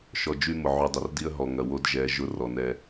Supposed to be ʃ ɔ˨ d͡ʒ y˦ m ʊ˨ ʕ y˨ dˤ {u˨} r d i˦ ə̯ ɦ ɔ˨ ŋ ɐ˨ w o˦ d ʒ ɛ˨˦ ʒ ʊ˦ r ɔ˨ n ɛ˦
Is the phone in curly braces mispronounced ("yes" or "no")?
yes